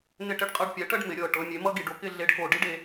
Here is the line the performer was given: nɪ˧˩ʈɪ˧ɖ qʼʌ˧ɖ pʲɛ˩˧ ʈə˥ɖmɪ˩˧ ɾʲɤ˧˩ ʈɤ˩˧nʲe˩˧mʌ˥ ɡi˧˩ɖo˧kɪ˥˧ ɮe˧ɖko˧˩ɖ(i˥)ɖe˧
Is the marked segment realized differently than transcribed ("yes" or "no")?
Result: no